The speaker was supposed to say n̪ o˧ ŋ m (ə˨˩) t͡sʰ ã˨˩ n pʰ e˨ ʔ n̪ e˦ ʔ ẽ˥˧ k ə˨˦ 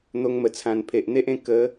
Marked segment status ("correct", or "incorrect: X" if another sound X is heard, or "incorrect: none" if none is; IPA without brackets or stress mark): correct